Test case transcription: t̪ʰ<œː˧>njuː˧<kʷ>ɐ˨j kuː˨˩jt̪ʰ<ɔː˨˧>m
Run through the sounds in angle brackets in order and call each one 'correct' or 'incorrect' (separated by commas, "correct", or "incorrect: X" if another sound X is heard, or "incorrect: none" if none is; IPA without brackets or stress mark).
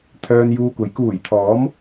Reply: correct, correct, correct